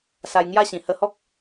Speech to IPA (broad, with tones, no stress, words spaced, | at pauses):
sa˧jŋja˥˧ɕĩ˨˩ hə˧hɔ˦k̚